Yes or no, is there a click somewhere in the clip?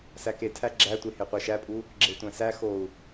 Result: yes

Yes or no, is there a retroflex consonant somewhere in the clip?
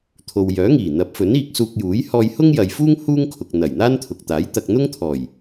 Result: no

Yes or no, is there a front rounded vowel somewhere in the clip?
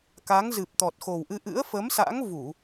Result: no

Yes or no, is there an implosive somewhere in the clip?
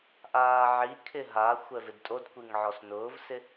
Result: no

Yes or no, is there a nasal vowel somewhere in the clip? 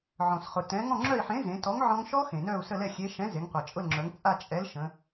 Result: yes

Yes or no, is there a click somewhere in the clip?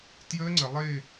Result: yes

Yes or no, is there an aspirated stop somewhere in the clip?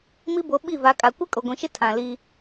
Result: yes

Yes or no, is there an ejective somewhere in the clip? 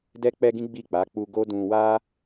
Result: no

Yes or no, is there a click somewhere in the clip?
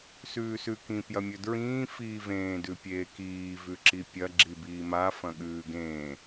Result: yes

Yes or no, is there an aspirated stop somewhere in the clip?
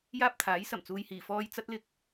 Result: yes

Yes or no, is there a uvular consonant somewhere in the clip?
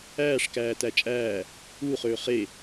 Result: yes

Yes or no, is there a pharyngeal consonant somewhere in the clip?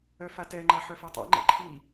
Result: yes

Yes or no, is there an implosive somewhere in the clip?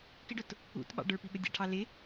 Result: yes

